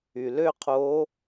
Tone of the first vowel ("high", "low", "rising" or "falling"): low